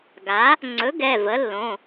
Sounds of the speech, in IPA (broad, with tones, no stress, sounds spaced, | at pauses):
ɡ a˩˥ | ŋ͡ǀ ɵ˩˥ ɡ ɛ˩˧˩ v ə˩˥ lː õ˩˧˩